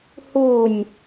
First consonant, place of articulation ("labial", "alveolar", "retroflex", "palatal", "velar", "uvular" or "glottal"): glottal